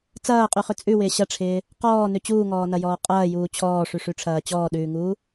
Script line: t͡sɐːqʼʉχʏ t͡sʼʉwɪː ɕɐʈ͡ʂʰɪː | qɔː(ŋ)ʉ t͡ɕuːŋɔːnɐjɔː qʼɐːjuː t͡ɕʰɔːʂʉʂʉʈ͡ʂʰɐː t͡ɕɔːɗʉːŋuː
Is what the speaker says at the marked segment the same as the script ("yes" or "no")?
no